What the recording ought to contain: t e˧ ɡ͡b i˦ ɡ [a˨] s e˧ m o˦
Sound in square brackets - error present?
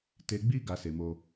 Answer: yes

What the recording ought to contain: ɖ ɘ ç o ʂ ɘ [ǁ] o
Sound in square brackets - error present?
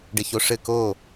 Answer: yes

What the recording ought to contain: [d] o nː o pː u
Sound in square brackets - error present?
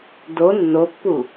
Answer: no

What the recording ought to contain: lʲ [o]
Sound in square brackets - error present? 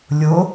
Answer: no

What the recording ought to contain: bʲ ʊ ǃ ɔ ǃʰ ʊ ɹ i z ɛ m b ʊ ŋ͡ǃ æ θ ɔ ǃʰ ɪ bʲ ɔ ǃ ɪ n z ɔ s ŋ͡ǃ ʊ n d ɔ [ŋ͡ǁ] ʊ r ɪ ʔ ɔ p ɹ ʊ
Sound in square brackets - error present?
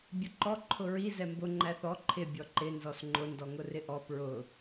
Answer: yes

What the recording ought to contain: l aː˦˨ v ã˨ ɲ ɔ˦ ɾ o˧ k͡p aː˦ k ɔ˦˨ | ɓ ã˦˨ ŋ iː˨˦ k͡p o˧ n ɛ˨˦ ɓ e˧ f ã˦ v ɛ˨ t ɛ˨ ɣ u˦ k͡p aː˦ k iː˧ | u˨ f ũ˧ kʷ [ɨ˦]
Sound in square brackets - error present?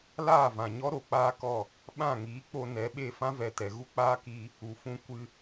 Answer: yes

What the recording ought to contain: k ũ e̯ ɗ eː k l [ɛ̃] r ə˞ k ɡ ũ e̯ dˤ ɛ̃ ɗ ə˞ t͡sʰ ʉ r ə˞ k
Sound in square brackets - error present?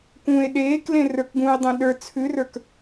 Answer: yes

